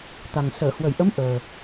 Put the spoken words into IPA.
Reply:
t̪ a˨˩ ŋ s əː˧˩ h w ə˧˩ j ʔ ə˨˦ m ʔ əː˨˩

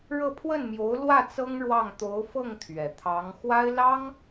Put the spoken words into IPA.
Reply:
ɻ ɤ˥˧ pʰ w ə˥˩ n m j o˧˥ ʊ̯ l w ä˥˩ t͡s ɤ˥ ŋ ɻ w ɑ˥˩ ŋ t̪ o˧˥ ʊ̯ f ɤ˥˩ ŋ t̪ʰ ɥ ɛ˨˩ t̪ʰ ɑ˧˥ ŋ x w a˥ ɪ̯ l ɑ˥ ŋ

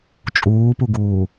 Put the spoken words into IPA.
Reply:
t͡ʃʼ uː p u ɡ uː

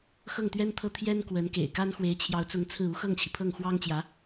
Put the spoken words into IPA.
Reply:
x ɤ˥˩ ŋ t̪ ɥ ɛ˥ n t̪ʰ ɤ˥˩ t̪ʰ j ɛ˥ n k w ə˧˥ n k ḛ˨˩ ɪ̯ k a˥ n x w e˧˥ ɪ̯ t͡ɕʰ j ɑ˧˥ ʊ̯ t͡s ʊ˧˥ ŋ t͡sʰ ɹ̩˥˩ u˥ x ɤ˥˩ ŋ t͡ɕʰ i˩ pʰ ɤ˥˩ ŋ x w ɑ˥ ŋ t͡ɕ j ä˧˥

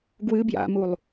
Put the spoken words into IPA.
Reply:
ɡ w ɨ b j a̰ m u lˠ

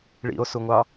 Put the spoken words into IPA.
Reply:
ɭ ḭ o̯ s u ŋʷ ɑ

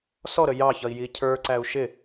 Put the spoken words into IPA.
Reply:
s ɔ ɾ ə j ɑ ç ʌ i̯ j i cʰ ə˞ ǀ æ u̯ ʃ ɪ

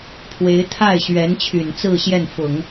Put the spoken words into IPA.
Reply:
pʰ w e˧˥ ɪ̯ t̪ʰ a˥˩ ɪ̯ ɕ ɥ ɛ˧˥ n t͡ɕʰ y˨˩ n t͡s ɹ̩˥˧ ɕ j ɛ˥˩ n f ʊ˨˩˦ ŋ

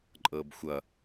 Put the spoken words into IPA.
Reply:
ǃʼ ɤː b xʷ ʌ

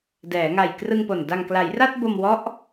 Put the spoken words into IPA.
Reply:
d ɛː˩˦ ŋ a˨˩ j k r ɯ˧ ŋ p o˨˩ n d a˨˩ ŋ k l a˩˦ j r a˥˩ t̚ b o˧ m w ɔ˦˥ ʔ

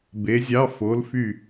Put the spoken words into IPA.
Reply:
b e˨˥ zʲ ɑ˧˥˧ f o˨˥ l f y˦˨

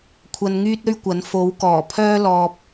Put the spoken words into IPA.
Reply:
kʷʰ ɐ˧ n ŋ yː˥ t̚ ɵ˥ ɥ kʷ ɐ˨˥ n f o˨˥ w k ɔː˨˩ pʰ œː˥ l ɔː˧ p̚

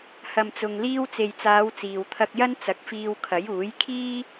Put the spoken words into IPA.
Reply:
h ɐ˨ m t͡s ʊ˨ ŋ l iː˧ w t͡s e˨ j t͡s aː˨˧ w t͡s iː˨ w t̪ʰ ɐ˧ k̚ j ɐ˥ n t͡s ɐ˨˥ k̚ f iː˧ w kʰ ɐ˨˥ j uː˨˥ j kʰ iː˥

